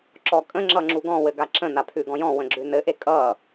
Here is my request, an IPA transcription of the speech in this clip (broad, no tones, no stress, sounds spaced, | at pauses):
ǁ ɔ kʼ ə̃ ŋ͡ǁ ʌ ŋ͡ǁ u ɡ ɔ̃ w ɘ ɡ a ǁ ə̃ n a pʰ ʉ ɡ ɔ̃ j ɔ̃ w ə̃ ɡ͡ǁ ʉ n ɘ ʔ e kʼ ʌ